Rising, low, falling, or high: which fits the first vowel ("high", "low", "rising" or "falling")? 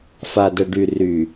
low